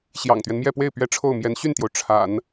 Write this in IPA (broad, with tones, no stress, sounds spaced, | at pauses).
ɕ j ɑ̰˨˩ ŋ t̪ ɥ ɛ˦ n m j ɛ˥˧ p w e˥˩ ɪ̯ p ɥ ɛ˥ ʈ͡ʂʰ o˥˩ ʊ̯ m j ɛ˧˥ n ɕ y˥˩ n t̪ j o˩ ʊ̯ ʈ͡ʂʰ a̰˨˩˦ n